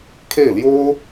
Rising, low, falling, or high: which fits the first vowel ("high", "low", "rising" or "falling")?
falling